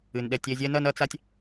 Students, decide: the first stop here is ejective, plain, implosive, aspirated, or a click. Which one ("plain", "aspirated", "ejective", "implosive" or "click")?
implosive